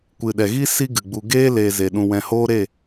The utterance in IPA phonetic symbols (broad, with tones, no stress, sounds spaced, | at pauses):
kʷ ɨ˨ ɗ ɛ˨ ɣ i˦ s i˦ ɡ ɨ˨ ɡ͡b u˧ ɡ eː˦ l eː˧ z e˨ ɗ ũ˧ w ɛ̃˧ h oː˦ ɾ e˦˨